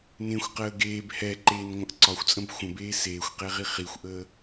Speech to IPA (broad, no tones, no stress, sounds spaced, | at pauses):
n ẽ xʷ q əː ɡ eː b h ɛ ǃ eː n ŋʷ ə̃ ʔ ǀ ɒ xʷ t͡sʼ ə̃ b xʷ ə̃ b eː s eː xʷ q e ʁ i χ i xʷ ʔ əː